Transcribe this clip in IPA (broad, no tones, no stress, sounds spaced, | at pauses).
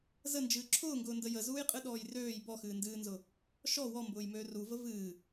z ə n d͡ʒ ɨː ǁʰ ʊː ŋ ɡ ʊː n d ə j ə z uː j qʼ ɨ ɗ ɔː j r øː j b ɔ x ɨː n d ɨː n z ʊ | ʃ ɔ w ɔ m b ʊː j m øː r u v ə v ɨː